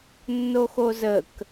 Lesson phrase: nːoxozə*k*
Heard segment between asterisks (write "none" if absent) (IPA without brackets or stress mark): k